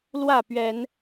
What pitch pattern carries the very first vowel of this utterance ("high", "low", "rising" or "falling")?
falling